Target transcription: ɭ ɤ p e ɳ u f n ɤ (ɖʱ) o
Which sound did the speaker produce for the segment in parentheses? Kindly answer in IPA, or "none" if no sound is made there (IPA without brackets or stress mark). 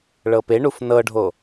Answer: ɖʱ